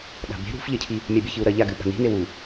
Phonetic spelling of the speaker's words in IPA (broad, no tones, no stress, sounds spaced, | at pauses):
ɗ a̤ b e̤ ɾ ṳ f ʎ ɐ cʰ i | mʲ a bʲ ɵ ç ɨ u̯ ɾ ɐ ʎ a ɡ ɨ ɓ a̤ n i̤ n e w u